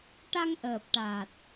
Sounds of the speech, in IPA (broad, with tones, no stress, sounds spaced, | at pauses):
ʈ a˧ ŋ ʔ əː˨˩ p̚ ʈ a˨˩ t̚